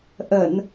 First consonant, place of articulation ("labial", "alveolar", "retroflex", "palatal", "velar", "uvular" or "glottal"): glottal